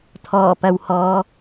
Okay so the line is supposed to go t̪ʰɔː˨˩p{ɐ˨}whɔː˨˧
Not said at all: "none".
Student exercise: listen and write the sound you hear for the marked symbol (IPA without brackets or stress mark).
ɐ˨